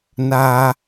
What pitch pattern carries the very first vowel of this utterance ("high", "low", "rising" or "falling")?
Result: high